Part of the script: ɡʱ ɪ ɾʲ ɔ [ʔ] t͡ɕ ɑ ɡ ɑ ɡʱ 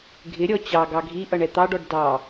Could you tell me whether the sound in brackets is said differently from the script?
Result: yes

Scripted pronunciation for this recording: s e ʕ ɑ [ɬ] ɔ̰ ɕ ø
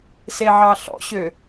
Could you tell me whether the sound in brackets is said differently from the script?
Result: no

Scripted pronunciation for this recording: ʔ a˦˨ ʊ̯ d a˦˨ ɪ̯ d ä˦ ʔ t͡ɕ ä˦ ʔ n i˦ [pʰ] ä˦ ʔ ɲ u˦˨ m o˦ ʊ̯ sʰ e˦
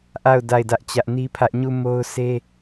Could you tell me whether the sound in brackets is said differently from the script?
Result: no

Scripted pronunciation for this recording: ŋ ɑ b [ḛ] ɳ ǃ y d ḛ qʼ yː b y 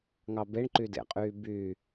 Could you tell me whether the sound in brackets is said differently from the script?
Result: yes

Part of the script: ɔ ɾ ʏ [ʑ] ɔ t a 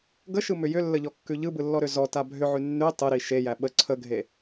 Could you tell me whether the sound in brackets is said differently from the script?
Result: yes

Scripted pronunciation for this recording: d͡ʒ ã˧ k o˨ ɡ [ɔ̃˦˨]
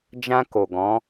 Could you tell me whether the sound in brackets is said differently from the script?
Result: yes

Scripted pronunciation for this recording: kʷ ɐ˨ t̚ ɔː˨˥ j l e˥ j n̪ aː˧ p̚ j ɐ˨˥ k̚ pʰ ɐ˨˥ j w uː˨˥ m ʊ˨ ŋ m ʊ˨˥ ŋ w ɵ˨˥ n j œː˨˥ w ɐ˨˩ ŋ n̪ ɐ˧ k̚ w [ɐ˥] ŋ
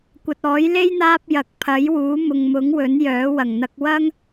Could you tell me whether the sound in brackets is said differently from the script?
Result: no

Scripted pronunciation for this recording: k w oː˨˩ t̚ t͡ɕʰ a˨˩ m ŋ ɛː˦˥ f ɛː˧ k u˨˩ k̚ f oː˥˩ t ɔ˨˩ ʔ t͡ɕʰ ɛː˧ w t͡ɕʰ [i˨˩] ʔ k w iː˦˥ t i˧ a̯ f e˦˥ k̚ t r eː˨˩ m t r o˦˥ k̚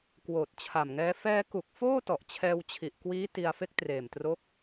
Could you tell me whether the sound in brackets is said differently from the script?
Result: no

